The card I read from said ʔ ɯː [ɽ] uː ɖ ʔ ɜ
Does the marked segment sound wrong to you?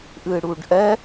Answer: no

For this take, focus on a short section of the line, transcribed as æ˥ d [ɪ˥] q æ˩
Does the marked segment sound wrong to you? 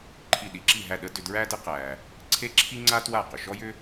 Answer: yes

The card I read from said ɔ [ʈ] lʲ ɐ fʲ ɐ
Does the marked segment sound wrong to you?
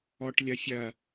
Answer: no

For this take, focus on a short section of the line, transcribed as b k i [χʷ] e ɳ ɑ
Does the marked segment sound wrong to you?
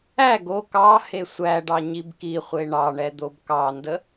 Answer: no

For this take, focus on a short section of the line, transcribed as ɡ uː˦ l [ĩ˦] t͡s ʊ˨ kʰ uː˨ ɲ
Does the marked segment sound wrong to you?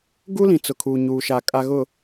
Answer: yes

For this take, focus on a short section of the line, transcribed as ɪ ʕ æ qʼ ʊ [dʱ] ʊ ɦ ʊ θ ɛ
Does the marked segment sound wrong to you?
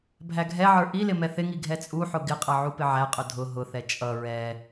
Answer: no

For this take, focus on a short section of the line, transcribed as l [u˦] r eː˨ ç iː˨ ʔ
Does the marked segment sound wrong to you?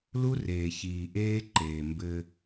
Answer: no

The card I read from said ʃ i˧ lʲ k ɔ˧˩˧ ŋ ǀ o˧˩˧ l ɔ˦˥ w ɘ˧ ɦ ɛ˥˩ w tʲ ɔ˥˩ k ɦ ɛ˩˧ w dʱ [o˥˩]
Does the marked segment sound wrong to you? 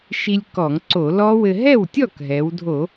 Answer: yes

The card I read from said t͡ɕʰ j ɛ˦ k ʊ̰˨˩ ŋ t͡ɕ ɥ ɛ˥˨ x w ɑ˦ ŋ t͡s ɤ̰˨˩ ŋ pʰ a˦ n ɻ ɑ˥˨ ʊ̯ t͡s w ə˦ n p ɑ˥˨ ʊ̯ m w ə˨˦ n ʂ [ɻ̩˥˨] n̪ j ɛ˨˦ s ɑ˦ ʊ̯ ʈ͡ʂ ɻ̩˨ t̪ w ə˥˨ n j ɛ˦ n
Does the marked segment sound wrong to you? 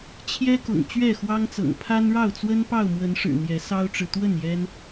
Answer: yes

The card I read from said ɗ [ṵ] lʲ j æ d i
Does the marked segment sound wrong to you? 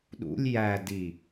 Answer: no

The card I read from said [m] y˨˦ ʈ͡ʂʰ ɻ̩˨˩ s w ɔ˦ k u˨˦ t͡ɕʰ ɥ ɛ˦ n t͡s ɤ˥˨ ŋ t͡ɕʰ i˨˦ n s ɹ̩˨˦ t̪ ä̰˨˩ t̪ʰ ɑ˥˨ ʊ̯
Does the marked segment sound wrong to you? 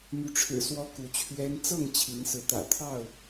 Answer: no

